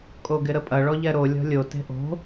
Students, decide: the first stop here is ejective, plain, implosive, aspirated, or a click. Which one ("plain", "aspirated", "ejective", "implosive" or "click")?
ejective